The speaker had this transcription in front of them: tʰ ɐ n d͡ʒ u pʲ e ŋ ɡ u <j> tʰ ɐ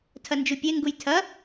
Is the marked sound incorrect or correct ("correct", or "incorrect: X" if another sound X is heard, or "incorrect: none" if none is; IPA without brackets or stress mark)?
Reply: correct